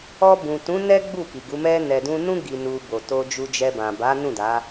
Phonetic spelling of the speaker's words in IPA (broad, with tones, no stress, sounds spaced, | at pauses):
ɔ˧ b ũ˨ t ũ˨˦ n ɛ˦ ɡ͡b u˦˨ k i˨ ɡ u˨˦ m ɛ˧ n ɛ˨ d ũ˧ n ũ˦ ɡ i˧ n u˧ b o˨ t o˧ d͡ʒ u˧ d͡ʒ ɛ˧ b ã˨ b a˨˦ n ũ˦˨ d a˨˦